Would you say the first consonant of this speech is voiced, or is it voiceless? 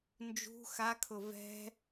voiced